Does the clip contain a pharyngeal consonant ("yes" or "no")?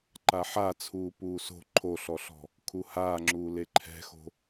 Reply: yes